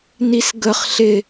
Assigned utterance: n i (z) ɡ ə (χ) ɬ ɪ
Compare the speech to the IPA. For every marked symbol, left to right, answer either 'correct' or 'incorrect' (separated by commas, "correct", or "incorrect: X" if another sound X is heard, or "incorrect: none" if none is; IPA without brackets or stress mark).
incorrect: s, correct